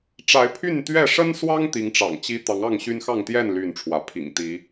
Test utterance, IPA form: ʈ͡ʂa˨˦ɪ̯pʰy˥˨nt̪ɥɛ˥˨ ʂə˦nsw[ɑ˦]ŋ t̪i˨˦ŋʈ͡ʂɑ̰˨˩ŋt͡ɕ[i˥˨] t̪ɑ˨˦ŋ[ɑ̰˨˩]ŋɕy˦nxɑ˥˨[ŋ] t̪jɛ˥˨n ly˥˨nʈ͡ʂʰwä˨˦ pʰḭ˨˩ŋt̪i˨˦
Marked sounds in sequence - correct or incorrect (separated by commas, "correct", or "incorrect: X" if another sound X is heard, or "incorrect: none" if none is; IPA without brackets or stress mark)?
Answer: correct, incorrect: i˦, incorrect: ɑ˥˨, correct